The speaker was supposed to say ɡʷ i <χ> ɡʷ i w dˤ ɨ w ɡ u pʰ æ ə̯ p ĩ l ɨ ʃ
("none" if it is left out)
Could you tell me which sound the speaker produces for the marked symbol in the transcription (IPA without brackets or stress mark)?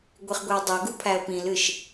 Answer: χ